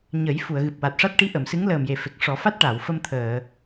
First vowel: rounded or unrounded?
unrounded